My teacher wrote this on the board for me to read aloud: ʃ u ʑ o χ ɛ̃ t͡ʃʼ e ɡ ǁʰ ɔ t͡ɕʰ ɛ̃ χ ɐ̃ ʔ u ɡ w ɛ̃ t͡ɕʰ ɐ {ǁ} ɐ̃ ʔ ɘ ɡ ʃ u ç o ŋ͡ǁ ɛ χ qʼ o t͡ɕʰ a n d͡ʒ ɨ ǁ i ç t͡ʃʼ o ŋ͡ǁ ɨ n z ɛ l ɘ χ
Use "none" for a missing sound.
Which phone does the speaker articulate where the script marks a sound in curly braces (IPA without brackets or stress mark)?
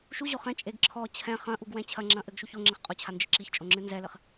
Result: ŋ͡ǁ